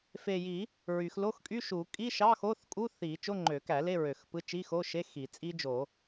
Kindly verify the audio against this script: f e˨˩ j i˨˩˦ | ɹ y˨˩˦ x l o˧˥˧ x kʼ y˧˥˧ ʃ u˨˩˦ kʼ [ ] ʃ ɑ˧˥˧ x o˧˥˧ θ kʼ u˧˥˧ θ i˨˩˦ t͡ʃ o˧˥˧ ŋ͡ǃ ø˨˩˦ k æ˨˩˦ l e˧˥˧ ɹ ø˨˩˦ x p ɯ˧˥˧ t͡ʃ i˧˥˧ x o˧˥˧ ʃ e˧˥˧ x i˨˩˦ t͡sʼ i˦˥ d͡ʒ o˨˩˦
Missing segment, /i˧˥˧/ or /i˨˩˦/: i˧˥˧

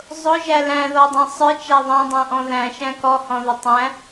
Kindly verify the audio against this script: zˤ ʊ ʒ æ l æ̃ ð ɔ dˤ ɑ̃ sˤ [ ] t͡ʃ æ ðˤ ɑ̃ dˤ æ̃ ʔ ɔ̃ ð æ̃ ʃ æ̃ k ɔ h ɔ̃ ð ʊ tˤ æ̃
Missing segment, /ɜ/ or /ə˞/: ə˞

